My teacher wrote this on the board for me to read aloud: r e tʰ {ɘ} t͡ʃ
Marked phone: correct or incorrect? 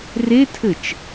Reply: correct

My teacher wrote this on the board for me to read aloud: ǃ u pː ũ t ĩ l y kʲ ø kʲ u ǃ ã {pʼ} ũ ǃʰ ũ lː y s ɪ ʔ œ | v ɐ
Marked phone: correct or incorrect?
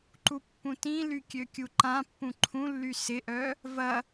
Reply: incorrect: pː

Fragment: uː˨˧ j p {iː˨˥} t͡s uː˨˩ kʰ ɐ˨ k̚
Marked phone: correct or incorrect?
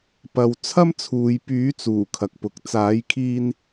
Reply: incorrect: yː˨˥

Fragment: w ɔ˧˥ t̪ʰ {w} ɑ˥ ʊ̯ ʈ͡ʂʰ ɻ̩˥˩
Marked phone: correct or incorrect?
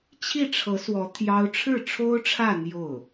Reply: incorrect: j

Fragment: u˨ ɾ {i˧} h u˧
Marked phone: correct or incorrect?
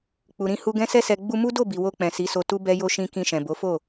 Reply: incorrect: ĩ˧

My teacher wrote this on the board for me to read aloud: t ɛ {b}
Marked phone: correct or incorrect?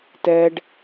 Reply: incorrect: ɖ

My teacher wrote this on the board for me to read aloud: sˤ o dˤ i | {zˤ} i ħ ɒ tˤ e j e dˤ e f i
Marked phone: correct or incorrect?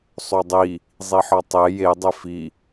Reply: correct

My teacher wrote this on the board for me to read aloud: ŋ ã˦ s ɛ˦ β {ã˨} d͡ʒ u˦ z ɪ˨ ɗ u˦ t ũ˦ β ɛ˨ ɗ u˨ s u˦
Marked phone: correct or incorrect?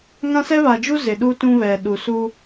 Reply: incorrect: a˨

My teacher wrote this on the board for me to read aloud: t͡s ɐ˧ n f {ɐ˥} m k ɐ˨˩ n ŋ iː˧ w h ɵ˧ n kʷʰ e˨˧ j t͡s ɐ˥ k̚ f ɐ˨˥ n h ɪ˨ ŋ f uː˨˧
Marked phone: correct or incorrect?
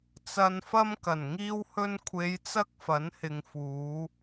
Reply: correct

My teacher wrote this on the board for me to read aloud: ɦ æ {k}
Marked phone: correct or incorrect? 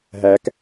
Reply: correct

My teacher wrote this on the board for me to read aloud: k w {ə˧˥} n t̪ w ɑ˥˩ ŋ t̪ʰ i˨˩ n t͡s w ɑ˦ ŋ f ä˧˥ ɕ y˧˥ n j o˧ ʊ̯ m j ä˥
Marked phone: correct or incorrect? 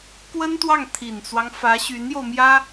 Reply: incorrect: ə˥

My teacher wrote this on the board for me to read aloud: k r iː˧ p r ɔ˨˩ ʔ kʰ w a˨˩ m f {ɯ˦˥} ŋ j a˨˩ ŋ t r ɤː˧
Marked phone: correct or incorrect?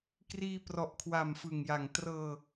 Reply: incorrect: ɯ˨˩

